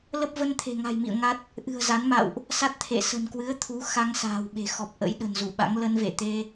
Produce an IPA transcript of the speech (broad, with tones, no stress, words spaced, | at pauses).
lə˦˥p̚ və˧nt̪ʰe̤˨˩ŋa̤˨˩jmḭ˧˨ə̯ ŋa˦˥t̚ | ʔɨ̤˨˩ə̯za˨˦nma̰˧˨wʔ | sa˦˥t̚t̪ʰḛ˧˨ sə̤˨˩nkwɨ˨˦ə̯t̪ʰu˨˦ xa˧ŋsa̤ː˨˩wɓe̤˨˩ xɔ˨˩p̚ʔə̰˧˥j ɗə̤˨˩nzu˧˩ɓa̰˧˥ŋ lə˧nvḛ˧˨t̪e˧